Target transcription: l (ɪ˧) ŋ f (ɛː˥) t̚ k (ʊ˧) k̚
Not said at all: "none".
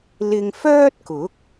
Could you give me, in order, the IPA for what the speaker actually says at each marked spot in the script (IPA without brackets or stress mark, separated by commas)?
ɪ˧, œː˥, ʊ˨˥